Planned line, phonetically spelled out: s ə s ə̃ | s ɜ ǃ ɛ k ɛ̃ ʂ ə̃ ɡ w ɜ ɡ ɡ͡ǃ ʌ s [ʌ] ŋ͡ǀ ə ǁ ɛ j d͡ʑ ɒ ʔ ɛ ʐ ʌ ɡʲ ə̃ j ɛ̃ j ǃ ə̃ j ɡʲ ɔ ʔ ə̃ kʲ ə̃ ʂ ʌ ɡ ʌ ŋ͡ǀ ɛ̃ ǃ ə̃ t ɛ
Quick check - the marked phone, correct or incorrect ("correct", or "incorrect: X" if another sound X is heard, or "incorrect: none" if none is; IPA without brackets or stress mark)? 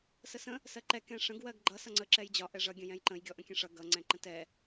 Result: correct